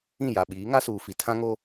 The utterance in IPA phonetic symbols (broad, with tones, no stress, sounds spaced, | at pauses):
ĩ˦˨ j a˨ ɓ iː˨˦ ŋ a˦ s uː˨ f i˨ tʰ ã˦ ŋ o˦